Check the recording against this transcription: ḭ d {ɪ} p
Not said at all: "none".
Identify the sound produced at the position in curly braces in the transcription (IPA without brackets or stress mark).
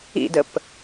ə